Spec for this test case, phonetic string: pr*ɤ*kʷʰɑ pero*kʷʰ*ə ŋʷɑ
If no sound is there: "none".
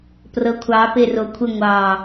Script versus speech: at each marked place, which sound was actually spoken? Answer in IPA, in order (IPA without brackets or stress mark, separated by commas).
ɤ, kʷʰ